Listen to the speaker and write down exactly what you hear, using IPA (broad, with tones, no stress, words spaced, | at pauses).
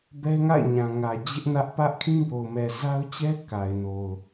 bɛ˦ŋa̰˦˨ɪ̯ɲã˨ŋä˨ d͡ʑɪ˦ʔnä˦ʔ pä˦ʔkʰĩ˦bo˨ʊ̯ mɛ˨za˦ʊ̯t͡ɕɛ˦ ka˨ɪ̯no˨ʊ̯